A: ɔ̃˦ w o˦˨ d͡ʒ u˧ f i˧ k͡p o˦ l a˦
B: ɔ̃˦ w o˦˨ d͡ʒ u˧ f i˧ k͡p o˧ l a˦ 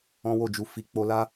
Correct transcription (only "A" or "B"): A